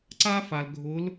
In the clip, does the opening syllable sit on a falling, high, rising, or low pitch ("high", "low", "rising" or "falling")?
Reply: high